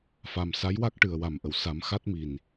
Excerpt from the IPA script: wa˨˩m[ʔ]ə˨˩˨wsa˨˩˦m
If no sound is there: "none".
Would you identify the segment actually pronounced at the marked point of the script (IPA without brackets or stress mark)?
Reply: ʔ